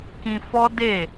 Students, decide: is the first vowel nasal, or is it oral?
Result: nasal